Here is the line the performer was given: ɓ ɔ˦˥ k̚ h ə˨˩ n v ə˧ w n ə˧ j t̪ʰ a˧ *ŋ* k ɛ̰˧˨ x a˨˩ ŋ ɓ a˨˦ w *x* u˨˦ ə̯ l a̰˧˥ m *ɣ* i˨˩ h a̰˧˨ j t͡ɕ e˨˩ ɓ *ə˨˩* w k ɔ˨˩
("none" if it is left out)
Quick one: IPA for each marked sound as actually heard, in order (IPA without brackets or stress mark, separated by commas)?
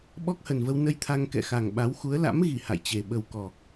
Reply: ŋ, x, ɣ, ə˨˩